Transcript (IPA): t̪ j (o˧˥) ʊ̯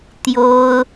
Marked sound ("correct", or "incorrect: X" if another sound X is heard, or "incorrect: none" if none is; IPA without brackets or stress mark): incorrect: o˥